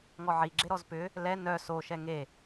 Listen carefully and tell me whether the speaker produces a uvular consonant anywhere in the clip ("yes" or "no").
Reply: no